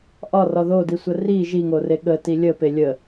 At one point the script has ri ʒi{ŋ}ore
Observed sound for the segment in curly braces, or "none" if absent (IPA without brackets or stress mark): ŋ